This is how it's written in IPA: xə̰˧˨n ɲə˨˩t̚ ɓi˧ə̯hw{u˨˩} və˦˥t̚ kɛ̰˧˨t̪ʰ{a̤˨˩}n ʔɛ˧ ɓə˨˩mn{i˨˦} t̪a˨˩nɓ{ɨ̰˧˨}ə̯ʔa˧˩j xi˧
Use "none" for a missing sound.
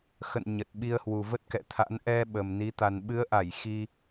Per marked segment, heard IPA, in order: u˨˩, a̰˧˥, i˨˦, ɨ˨˦

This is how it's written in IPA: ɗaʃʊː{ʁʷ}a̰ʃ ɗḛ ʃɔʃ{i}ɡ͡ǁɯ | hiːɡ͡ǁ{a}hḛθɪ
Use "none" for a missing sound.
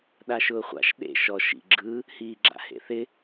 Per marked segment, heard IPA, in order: χʷ, ḭ, a̰

